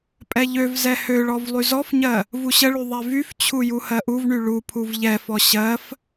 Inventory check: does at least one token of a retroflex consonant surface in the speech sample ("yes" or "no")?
yes